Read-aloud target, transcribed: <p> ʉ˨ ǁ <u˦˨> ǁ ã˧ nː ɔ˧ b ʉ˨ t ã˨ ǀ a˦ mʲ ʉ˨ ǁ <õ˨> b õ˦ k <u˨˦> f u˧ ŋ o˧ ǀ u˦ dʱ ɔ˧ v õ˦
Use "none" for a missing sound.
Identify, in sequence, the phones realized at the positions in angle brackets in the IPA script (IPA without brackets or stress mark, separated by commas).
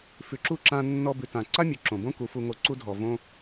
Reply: f, u˦˨, õ˨, u˨˦